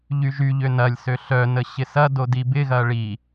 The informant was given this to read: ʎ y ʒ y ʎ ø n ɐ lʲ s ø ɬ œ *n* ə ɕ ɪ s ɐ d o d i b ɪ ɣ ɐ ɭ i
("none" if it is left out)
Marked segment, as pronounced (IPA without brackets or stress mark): n